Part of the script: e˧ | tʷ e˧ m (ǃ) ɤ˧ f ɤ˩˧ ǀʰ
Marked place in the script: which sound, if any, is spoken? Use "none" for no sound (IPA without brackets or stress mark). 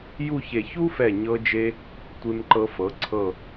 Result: ǃ